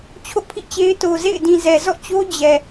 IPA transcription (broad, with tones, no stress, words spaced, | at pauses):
t͡ɕʰo̰˦˨pʰḭ˦˨t͡ɕe˦ɪ̯ to˨zḛ˦˨ɪ̯dĩ˨zɛ˨ zɔ̰˦˨t͡ɕo˦ d͡ʑɛ˨